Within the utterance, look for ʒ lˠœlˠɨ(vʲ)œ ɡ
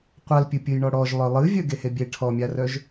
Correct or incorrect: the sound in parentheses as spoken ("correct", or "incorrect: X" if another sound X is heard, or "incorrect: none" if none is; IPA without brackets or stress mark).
correct